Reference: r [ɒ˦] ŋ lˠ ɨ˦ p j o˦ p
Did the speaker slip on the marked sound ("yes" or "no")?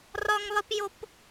no